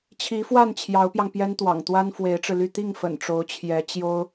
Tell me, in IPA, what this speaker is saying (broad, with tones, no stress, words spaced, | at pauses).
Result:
t͡ɕʰi˧˥fwa˥˩n t͡ɕʰjɑ˧˥ʊ̯pjɑ˧ŋ pjɛ˥nt̪wɑ̰˨˩ŋt̪wa˥n fwe˧˥ɪ̯ʈ͡ʂɻ̩˧ly˥˧ t̪i˥˩ŋ fə̰˨˩nʈ͡ʂo˧˥ʊ̯t͡ɕʰjɛ˧˥ t͡ɕjo˥ʊ̯